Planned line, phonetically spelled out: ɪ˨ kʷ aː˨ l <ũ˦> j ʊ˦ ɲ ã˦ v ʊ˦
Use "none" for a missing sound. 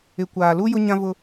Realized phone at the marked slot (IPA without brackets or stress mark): u˦